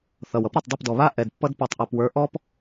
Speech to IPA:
θ ʌ˨ w ʌ˨˦ p ɾ ɔ˨ tˤ dˤ i˦˨ p d ɔ˨ β a˦ ʔ ɛ˨ d pː ʌ˦ d p ɔ˨ tˤ ʔ a˨ p w ə˞˨˦ ʔ ɔ˦ p

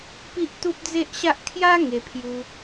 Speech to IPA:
p i˦ ʔ t̪ u˦ p̚ d͡z e˦ ʔ ɕ a˦ ʔ kʰ j a˦ ŋ e˧ pʰ j u˧

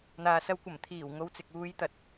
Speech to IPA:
n̪ aː˨ s ɐ˧ w kʷ ɐ˨˩ m t̪ʰ iː˨˩ w ŋ o˧ w t͡s ɪ˨ k̚ uː˧ j t̪ ɐ˨˥ t̚

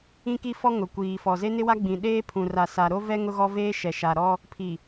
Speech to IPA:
ĩ˦ k i˦ f ɔ˦ ŋ ʊ˨ kʷ iː˨ f ɔ˨ z e˦ n ɪ˦ w a˦ ɡ͡b ĩ˨ ɗ eː˦ pʰ ũ˨ r a˨ s a˨ ɾ o˦ v ɛ˦ ŋ ʊ˦ ɣ ɔ˦ v eː˦ ʃ ɛ˨ ʃ a˨ ɾ ɔ˦ | pʰ i˨

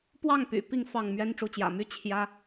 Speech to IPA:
p w ɑ˥˨ ŋ p y̰˨˩ p i˥˨ ŋ f ɑ˥˨ ŋ m ɥ ɛ˦ n ʈ͡ʂ u˨˦ t͡ɕ j ä̰˨˩ m y˦ t͡ɕʰ j ä˦

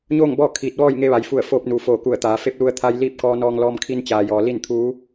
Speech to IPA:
ɲ oː˥˨ ŋ b ɔː˥˨ kʰ iː˧˩ t̚ ʋ ɔː˥˨ j ŋ e˧ ʋ a˩ j f u˧˩ ə̯ f oː˧ p̚ n uː˩ f oː˧˩ k u˧˩ ə̯ t̪ aː˩˧ f e˧˥ p̚ l u˧ ə̯ t̪ʰ a˧ j l iː˥˨ p̚ k ɔː˧ n ɔː˧ ŋ l ɔː˧ m kʰ i˧ n t͡ɕ aː˩ j ɔː˩ l i˥˨ n t̪ʰ uː˧˥

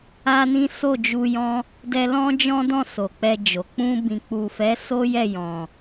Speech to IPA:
a˦ n ĩ˦ s o˦˨ d͡ʒ u˧ j ɔ̃˦ | d ɛ˧ l ɔ̃˦ d͡ʒ ɔ̃˦ d ɔ̃˦˨ s o˨ k͡p ɛ˧ d͡ʒ o˨ k͡p ũ˧ b ĩ˨ k͡p u˨ f ɛ˨˦ s o˦ j ɛ˦˨ j ɔ̃˨

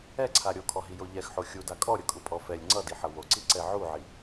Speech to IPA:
ɛ ǀʰ a ɾʲ o kʰ ɔ ɦ i j o ʎ ɛ x ħ o xʲ u d a kʼ ɔ ɾʲ ʌ kʼ u pʼ ɔ f ɛ lʲ ŋ͡ǀ ʌ d i ħ ʌ w o ǀ i ǀ ɛ ʕ u ʕ i

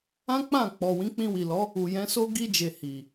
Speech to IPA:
ã˦ k͡p ã˦˨ k͡p ɔ˨ w ĩ˨˦ k͡p ĩ˧ w i˨ l ɔ˨˦ | u˨ j ɛ̃˨˦ s o˦ ɡ i˧ d͡ʒ e˨ h i˨

